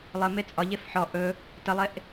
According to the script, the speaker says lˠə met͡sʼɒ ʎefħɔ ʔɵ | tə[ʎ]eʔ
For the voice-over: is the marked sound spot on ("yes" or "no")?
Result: no